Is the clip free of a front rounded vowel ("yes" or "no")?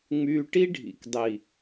no